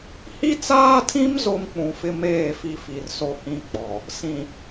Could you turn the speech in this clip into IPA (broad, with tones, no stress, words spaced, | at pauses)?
hi˦t͡saː˦tʰĩ˦m zo˦mk͡pũ˨fɪ˦meː˦˨ fi˦fi˨rso˦hĩ˦ k͡pɔ˨ | sĩ˨